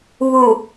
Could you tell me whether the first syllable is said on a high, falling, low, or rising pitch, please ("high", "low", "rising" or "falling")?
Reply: low